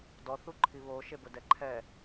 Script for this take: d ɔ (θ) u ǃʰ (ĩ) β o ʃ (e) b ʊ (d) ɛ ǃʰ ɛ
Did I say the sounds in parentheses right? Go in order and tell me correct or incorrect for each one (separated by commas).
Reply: correct, incorrect, correct, correct